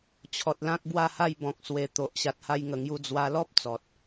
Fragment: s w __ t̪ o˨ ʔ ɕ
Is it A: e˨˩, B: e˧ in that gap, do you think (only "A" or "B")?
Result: A